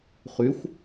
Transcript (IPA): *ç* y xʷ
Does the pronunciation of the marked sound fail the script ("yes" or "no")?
yes